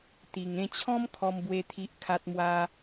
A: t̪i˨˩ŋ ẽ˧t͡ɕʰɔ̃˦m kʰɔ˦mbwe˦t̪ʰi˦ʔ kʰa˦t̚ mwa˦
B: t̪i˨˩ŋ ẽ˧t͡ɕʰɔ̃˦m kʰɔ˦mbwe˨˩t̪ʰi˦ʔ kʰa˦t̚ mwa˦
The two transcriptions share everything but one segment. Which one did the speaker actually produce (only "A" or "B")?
A